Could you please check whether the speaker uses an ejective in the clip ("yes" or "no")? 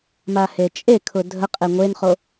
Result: yes